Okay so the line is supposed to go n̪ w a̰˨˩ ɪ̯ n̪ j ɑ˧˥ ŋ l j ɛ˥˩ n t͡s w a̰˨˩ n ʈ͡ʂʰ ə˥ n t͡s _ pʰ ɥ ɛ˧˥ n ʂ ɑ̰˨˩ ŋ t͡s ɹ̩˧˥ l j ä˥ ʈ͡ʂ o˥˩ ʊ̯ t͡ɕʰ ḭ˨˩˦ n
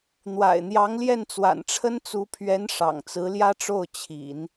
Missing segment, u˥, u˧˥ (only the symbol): u˧˥